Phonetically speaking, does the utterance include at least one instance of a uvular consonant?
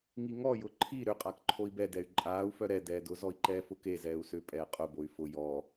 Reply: yes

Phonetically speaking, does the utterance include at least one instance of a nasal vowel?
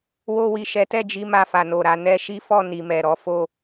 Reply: no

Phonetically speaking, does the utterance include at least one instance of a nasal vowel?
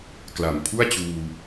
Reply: no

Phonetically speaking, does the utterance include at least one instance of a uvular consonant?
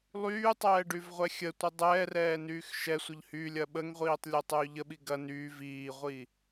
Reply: yes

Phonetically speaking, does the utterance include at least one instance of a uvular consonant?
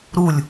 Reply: no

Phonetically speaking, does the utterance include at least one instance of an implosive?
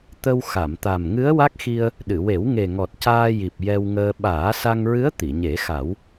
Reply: yes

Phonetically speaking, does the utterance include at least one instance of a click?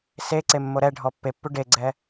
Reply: yes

